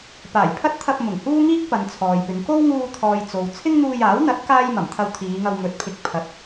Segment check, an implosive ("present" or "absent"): absent